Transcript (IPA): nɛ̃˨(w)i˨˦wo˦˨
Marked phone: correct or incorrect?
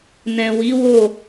correct